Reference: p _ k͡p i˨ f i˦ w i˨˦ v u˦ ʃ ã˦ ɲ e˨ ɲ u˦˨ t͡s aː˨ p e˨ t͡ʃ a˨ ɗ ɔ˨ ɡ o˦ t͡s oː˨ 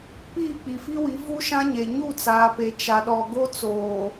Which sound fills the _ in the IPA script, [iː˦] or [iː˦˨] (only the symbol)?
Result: iː˦˨